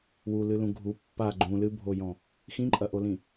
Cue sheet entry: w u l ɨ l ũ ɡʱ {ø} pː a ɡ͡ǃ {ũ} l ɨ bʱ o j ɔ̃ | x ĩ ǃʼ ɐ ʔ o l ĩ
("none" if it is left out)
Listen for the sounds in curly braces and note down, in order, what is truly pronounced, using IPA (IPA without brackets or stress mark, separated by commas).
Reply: u, ũ